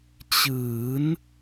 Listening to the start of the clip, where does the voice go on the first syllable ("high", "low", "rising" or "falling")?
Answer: rising